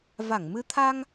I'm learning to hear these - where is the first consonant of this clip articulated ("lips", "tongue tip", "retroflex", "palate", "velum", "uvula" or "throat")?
lips